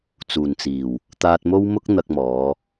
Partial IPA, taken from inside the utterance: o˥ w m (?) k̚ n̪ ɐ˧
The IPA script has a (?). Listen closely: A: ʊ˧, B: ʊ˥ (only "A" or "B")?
B